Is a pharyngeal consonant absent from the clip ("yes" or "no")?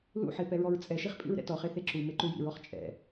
no